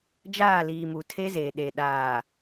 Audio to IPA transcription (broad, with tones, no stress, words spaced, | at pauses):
d͡ʒaː˦˨liː˨mu˨ tʰe˦zeː˨ ɗe˨ ɗaː˨